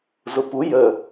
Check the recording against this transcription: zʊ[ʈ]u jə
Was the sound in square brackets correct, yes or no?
no